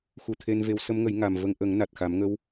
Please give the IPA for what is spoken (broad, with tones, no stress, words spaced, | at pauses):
xu˨˩ t̪ʰe˧nve˧˥w sə˧˥mŋə˨˩˦j ŋa˨˩mvə˧ŋ ʔə˨˩˦ŋna˨˩t̚ xa˨˩˦mŋə˧˥w